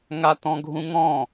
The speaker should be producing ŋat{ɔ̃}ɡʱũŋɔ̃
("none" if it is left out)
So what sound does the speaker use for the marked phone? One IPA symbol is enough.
ɔ̃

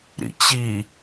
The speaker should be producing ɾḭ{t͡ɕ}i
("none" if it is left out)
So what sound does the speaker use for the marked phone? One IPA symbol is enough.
t͡ɕ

